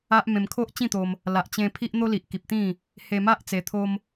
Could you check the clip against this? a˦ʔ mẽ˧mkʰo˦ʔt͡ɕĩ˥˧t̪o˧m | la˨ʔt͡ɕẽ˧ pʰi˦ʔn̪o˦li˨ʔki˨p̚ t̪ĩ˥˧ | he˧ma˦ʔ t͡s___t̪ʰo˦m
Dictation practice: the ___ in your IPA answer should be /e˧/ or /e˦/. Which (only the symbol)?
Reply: e˧